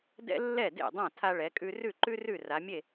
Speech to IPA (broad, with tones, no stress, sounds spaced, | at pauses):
d ɛ̰˥ lː ɛ˥˩ d ḛ˥˩ dˤ ã˥˩ tʰ a˧ ɭ ɛ˩˧ kʼ ʉ˧ r ʉ˥˩ ǃ ʉ˥ r ʉ˥˩ r a˩˧ mʲ e˥˩